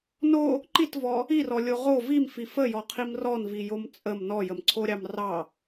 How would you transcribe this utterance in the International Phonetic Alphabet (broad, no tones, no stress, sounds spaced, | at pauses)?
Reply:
n o | ǃ i t v ɔ | i r ɔ lʲ o ʁ o v i m f i f ə j ɔ qʰ i m r ɔ n v i j o m t͡sʼ ə m n ɔ j ə m ǀʰ o ɾʲ ɑ m r ɑ